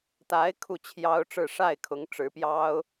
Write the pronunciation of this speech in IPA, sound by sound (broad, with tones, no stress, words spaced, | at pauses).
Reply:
t̪a˧˥ɪ̯ kʰu˥˩t͡ɕʰjɑ˥ʊ̯ʈ͡ʂɻ̩˥˧ ʂa˥˩ɪ̯kʰʊ˧˥ŋʈ͡ʂɻ̩˧˥pjɑ˥ʊ̯